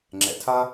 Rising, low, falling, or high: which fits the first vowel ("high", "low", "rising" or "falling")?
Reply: low